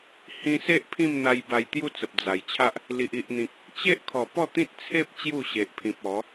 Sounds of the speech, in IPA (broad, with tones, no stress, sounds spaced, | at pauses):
h ĩ˧ s e˦ ʔ pʰ ĩ˥˧ m n̪ a˧ j b a˧ j t̪ j u˥˧ t͡s ə˨ p̚ d͡z a˨˩ j t͡ɕʰ a˦ ʔ | l i˨ ʔ i˨ ʔ n̪ ĩ˨ k̚ | t͡ɕ e˦ ʔ kʰ ɔ˨˩ p ɔ˥˧ t̪ ĩ˦ t̚ t͡sʰ e˦ p̚ t͡ɕ j u˥˧ ɕ e˨ ʔ pʰ ĩ˨ p̚ ɔ˨˦